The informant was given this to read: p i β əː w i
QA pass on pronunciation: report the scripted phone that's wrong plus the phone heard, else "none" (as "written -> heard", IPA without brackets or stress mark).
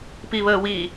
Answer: none